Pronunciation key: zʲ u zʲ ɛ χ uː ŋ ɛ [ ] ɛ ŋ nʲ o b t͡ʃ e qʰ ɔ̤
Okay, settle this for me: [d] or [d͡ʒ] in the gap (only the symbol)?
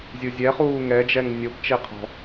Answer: d͡ʒ